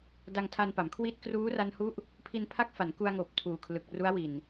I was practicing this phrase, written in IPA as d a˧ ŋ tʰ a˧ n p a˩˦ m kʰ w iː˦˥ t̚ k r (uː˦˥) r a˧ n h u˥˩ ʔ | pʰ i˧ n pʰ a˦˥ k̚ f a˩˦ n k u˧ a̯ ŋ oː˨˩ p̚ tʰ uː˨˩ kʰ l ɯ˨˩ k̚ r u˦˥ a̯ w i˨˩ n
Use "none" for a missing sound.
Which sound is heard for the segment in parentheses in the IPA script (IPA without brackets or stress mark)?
uː˦˥